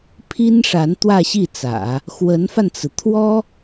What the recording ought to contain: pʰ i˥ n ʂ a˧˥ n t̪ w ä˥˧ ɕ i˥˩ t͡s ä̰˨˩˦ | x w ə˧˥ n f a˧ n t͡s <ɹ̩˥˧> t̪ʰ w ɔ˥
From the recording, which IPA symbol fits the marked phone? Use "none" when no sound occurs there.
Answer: ɹ̩˩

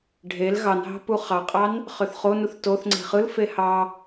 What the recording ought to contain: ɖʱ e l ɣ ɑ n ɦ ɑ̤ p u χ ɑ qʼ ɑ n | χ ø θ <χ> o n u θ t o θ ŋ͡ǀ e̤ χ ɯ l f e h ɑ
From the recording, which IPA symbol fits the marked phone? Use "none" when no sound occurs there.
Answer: χ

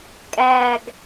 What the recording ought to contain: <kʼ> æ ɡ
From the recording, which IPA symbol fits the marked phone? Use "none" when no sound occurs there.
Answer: kʼ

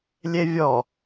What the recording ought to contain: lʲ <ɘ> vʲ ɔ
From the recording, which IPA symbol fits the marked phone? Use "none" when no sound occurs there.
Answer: e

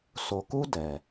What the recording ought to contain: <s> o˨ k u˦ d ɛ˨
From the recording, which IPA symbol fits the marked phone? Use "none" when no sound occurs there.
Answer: s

